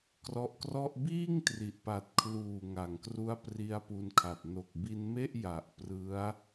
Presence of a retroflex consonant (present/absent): absent